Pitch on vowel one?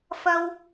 high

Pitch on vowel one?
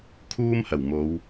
high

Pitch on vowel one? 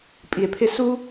low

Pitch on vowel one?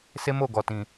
high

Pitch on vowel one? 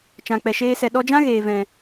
low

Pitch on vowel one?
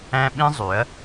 high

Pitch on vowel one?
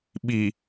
low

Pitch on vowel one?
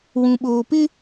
low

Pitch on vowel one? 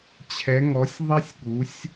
rising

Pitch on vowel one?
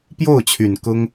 falling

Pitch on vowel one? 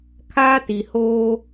high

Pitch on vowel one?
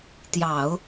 low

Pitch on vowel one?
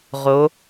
rising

